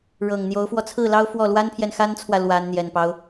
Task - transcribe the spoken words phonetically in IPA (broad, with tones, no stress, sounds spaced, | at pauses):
ɻ ɤ˨˩ ŋ n̪ j o˧˥ ʊ̯ f w ɔ˧ t͡sʰ ɹ̩˥˩ l ɑ˥ ʊ̯ f w ɔ˥˩ l w a˥ n pʰ j ɛ˨ n x a˥ n t͡sʰ w ä˨ l w a˧˥ n n̪ j ɛ˨˩ n p ɑ˦ ʊ̯